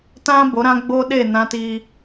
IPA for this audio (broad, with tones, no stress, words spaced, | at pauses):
tã˦ bo˨˦ɾã˦ ɡ͡bo˦ɗe˦˨ nã˦ti˦